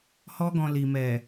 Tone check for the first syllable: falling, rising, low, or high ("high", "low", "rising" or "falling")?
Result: high